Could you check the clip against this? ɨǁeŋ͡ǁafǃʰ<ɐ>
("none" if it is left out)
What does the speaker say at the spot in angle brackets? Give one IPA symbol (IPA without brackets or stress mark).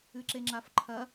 ɐ